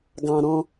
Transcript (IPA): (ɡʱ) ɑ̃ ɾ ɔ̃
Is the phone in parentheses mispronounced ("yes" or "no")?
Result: yes